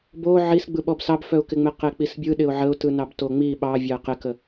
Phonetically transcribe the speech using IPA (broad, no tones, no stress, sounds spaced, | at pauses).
b o ʕ i s ɡ͡b ɯ ɓ ɔ b s ɑ b f œ ʊ̯ k ɪ ŋ͡m e q e k͡p i s bʲ ɯ ɗ ɪ ʊ̯ ʕ ə ʊ̯ t ɯ n ɑ b t o ŋ͡m i ɓ ɑ vʲ ɑ ɪ̯ q ɪ k ə